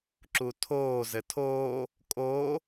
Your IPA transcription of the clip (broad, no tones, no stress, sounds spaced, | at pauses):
ǁ u tʰ oː z ɘ tʰ o | kʼ o